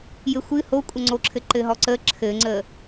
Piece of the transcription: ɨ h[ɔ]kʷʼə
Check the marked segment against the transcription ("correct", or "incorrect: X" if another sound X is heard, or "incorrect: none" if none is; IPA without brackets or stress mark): incorrect: o